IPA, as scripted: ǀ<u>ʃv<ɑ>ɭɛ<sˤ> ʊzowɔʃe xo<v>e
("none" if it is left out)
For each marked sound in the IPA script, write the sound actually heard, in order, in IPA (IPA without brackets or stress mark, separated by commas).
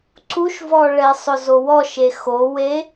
u, ɔ, sˤ, w